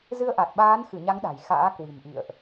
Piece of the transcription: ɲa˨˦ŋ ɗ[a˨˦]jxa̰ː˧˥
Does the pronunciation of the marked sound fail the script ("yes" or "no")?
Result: yes